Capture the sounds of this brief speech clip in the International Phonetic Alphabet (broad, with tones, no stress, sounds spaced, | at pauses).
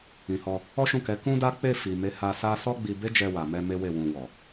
ĩ˨ h ɔ˧ | ɔ˦ ʃ ũ˦˨ k ɛ˨˦ k ũ˦ d a˦ k͡p e˦˨ f i˨ m e˨˦ h a˧ s a˦ s ɔ˦ ɡ͡b i˧ b e˦ d͡ʒ ɛ˧ w a˨ m ɛ˧ m e˦ w e˦˨ w ũ˧ w ɔ˨